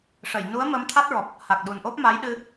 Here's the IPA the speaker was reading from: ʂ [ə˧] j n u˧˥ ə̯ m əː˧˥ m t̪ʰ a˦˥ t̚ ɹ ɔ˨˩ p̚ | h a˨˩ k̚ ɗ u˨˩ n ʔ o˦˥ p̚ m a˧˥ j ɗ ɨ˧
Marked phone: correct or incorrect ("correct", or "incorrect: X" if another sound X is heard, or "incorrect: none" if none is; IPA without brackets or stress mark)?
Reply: incorrect: ə˨˩˨